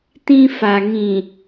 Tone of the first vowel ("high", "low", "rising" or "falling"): high